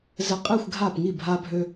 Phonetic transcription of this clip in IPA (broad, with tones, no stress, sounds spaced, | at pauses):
z ɘ˧ qʼ i˦˨ xʷ ɡʱ a˦˨ p ŋ i˦˨ bʱ a˦ bʱ ø˦